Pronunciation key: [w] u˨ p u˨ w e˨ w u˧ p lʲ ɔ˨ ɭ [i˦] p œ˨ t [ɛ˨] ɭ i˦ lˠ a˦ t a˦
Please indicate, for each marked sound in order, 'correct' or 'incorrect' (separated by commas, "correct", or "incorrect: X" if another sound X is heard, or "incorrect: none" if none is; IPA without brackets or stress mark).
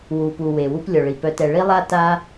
correct, incorrect: i˨, correct